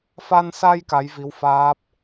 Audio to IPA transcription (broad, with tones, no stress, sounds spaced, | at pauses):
f a˧ n s a˧ j k a˧˥ j v i˧˥ w f aː˦˥ p̚